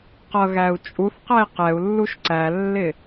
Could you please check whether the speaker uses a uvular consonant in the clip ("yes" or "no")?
yes